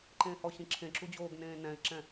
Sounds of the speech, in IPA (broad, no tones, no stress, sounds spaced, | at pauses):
ǃ ẽː h ɔ ɕ ĩ ǁʰ ẽ ǁ u d͡ʑ oː ɡ n ẽː n ɛ̃ ɪ̯ ǁ ɛ̃